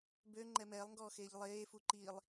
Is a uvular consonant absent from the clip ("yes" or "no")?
yes